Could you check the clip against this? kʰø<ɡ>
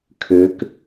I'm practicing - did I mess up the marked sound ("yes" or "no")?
yes